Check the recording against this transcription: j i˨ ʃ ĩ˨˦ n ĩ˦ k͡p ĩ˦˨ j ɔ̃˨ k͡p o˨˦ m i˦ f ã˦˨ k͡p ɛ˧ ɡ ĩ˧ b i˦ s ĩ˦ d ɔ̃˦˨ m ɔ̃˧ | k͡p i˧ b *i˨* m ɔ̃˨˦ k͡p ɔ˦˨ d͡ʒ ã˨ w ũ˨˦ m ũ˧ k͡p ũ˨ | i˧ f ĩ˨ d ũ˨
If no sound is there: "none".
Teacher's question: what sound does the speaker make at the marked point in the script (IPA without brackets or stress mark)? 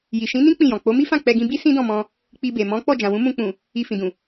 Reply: e˨